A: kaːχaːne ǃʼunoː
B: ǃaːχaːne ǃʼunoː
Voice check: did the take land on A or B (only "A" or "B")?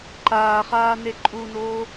B